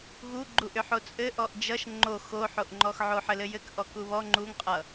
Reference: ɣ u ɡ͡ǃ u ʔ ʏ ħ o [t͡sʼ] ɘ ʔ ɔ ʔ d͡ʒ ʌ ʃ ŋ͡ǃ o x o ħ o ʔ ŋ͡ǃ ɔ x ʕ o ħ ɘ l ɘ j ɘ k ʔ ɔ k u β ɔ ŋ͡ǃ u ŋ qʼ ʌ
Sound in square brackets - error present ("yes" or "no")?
no